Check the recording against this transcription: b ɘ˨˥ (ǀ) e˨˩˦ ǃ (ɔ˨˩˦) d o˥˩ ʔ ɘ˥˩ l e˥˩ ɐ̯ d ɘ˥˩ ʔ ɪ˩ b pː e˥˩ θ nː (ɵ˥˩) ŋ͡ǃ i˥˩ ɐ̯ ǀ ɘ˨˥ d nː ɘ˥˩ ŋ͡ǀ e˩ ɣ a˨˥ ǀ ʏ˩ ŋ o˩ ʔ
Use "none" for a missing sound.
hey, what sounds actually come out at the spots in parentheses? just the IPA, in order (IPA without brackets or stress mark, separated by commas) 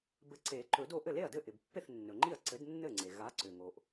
ǀ, ɵ˨˩˦, ɵ˩